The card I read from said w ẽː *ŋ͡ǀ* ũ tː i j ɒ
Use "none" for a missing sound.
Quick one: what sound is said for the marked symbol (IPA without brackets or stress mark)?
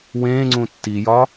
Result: ŋ͡ǀ